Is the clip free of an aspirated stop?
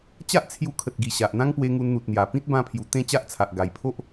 no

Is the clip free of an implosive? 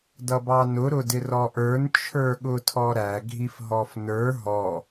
no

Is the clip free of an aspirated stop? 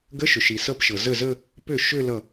yes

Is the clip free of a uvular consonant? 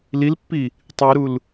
yes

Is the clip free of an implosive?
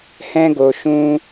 yes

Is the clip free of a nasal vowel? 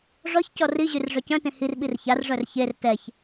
no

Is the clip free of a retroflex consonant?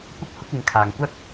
yes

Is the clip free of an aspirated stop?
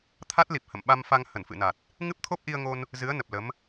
no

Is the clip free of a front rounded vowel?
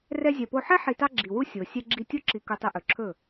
yes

